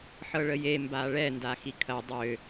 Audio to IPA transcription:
ħ ɤ ɭ ə j e m b a ɭ ɛ n d a x i kʰ ɐ dˤ ø

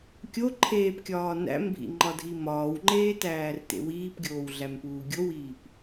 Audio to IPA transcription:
kʲ o ǃʰ eː p kʲ ɒː n æ̰ m bʱ ḭ ŋ͡ǃ ɒ dʱ i m ɒː w ŋ͡ǃ eː t æː r t ḛ w iː p ɡʲ oː w ɮ æ m p uː ɡʲ o w iː p

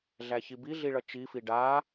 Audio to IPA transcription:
ɮ æ ç i b i ɮ i ɭ ʌ t͡ʃ i f i ɖ a

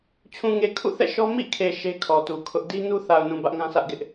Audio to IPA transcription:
t͡ɕʰ ũ˨ ŋ e˨ kʰ ṵ˦˨ θ ɛ̰˦˨ ʃ ɔ˦ m ḭ˦˨ kʰ e˨ ʃ e˦ kʰ ɔ˨ t u˨ kʰ ʊ˦ ʔ d i˦ n u˦ θ a˨ ʊ̯ n ũ˨ b ä˦ ʔ ŋ ã˦ sʰ ä˦ ʔ ɡ ɪ˦ ʔ

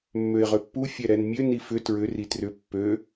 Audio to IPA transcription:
mː ø ɪ̯ ʁ ʏ pː u fʲ ɛ ɾ ɛ n mʲ ø n i f ʏ t ɹ ʏ r i t r ʏ pː ø

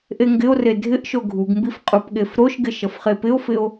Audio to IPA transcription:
ʔ e ŋ ɡ ɪ o̯ r e dʱ ɪ ʔ ʃ o ɡʱ u ɡ m b i f qʼ u p ɠ e f ɾ o ʃ ɡ ɪ ʃ ʌ f χ e p ɪ o̯ f ɪ o̯

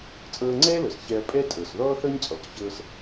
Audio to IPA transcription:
t͡sʼ ɤː˧ ŋ͡ǀ ɛː˥ l ɤ˩ s ç ɛ˧ ɐ̯ pʼ ɛ˥ tʼ ɤ˩ s ð ɔː˥ θ ɤ˥ ɲ t͡sʼ ɔ˩ k ç ɤː˧ s

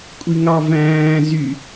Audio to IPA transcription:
kʷʼ i ŋ ɑ v æ̃ː z y

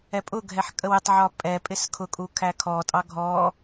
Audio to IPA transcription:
ɛ pʼ ʊ ɡʱ ɛ ħ kʼ ə w ɪ tˤ ʕ ɒ pʼ ɛ pʼ ɪ s kʰ ʊ kʼ u kʰ æ kʰ ɔ tʼ ɑ ɡʱ ɔ

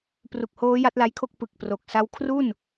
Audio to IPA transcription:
p r u˨˩ k̚ h oː˦˥ j a˦˥ t̚ l a˦˥ j kʰ o˥˩ k̚ p ɯ˨˩ k̚ p r o˨˩ k̚ s a˥˩ w kʰ r u˥˩ n

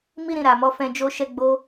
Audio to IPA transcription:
m i˦ ɾ ĩ˧ ɾ a˨ m ɔ˨˦ f ɛ̃˦ d͡ʒ o˦ ʃ ɛ˦ ɡ͡b o˦

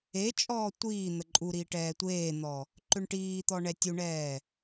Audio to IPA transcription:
e t͡ʃʼ ɔː tʷ iː n̪ ə ǃʼ u ɾ iː ʈ ɛː tʷ eː n̪ ɔ | ǃ ʏ ɳ ʈ iː t̪ ɔ ɳ ɛ tʲ u ɳ ɛː

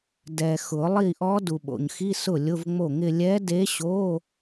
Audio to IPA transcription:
d ɛ˨ x ʊ˨˩˦ lˠ i˥˩ ʔ ɔ˧˥ d u˨ ɓ o̰˨ ɲ x i˧˥˧ s ʊ˥˩ lʲ ʊ˧˥˧ v ŋ͡m o˥˩ ŋ ɪ˥˧ lʲ ɛ˧˥ d e˧˥ ɕ o˧˥˧

